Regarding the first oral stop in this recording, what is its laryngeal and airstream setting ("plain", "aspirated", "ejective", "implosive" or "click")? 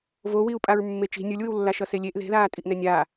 ejective